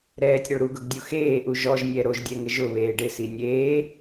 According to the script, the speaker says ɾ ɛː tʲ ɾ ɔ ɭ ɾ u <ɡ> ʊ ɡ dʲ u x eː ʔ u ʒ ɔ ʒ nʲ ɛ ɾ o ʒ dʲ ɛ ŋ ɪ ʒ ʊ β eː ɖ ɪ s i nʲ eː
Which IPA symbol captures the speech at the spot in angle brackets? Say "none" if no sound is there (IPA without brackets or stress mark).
ɡ